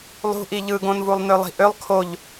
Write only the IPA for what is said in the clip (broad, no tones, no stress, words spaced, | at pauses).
lˠṳʔi ʎɯɡõnvulˠ nølˠi̤ʔølˠ kʰoʎ